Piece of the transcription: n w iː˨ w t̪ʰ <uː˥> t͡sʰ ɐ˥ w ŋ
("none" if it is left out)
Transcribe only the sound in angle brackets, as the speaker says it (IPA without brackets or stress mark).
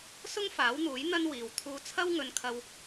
uː˧